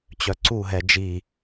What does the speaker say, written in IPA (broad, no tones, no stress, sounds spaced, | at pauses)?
t͡ɕ œ ǀ u ɦ ɛ d͡ʒ i